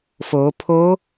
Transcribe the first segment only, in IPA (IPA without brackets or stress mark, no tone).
f